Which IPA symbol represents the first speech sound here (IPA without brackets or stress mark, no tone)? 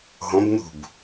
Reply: ɦ